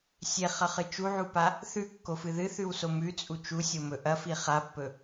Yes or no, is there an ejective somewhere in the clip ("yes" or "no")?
yes